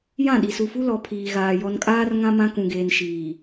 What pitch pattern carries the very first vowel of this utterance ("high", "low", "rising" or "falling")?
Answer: falling